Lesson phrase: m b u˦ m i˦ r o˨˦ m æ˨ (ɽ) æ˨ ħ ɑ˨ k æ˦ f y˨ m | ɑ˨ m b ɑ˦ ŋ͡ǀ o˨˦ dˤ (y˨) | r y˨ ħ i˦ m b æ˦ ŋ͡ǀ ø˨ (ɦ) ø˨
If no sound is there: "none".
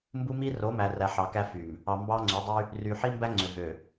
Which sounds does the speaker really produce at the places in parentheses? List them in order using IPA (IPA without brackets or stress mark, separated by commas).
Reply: r, y˦, ɦ